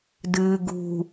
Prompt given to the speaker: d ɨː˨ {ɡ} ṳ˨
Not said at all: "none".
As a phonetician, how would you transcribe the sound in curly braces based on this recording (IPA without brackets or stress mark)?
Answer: ɡ